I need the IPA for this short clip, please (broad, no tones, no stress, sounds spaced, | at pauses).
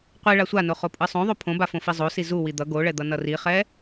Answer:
qʷ i ɭ a sʷ a n o χ o pʼ ɯ sˤ õ ðˤ o pʰ õ b a f õ f i zˤ o s i z u w i d̪ ʌ ɡ o ɭ ɛ d̪ ʌ n ʌ r i χ ɛ